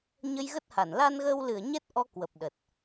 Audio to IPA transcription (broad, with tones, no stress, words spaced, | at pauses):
ɲə˧jɣə˦˥t̚ha˧˩n la˧nɣəː˧wlɨ˧˩ə̯ ɲɛ˦˥t̚ʔɔ˧ kwə˨˩p̚ɗə˨˩t̚